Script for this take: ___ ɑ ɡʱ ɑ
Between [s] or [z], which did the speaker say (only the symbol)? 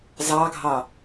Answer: z